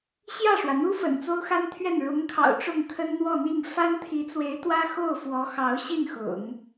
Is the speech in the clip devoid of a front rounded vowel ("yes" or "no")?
yes